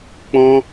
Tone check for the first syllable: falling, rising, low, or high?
high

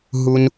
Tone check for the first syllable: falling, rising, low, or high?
low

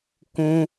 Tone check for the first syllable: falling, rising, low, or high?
high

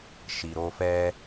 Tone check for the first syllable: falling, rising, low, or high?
low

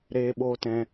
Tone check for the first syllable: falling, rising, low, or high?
high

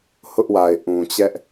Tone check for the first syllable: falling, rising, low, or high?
high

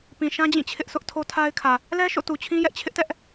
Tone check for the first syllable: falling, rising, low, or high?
low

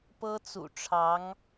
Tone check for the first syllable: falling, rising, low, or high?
high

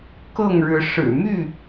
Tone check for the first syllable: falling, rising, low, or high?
falling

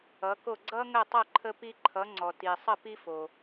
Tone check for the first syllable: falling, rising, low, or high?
rising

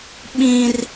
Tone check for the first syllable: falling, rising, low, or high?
high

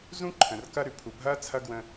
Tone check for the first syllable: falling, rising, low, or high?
high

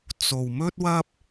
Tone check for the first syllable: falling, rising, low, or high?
low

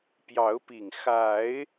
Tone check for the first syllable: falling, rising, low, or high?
rising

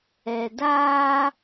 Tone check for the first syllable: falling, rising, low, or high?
low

